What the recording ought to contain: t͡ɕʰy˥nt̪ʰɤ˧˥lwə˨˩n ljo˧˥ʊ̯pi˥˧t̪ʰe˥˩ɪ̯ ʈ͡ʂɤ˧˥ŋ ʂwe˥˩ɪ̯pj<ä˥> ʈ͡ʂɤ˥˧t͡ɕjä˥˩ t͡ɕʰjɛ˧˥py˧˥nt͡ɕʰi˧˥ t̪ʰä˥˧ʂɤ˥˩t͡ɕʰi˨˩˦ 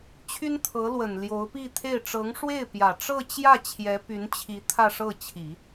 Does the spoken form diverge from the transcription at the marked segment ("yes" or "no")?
yes